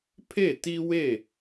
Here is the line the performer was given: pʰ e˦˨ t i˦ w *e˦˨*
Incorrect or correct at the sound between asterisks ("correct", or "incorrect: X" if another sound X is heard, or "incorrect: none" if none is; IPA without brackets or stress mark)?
correct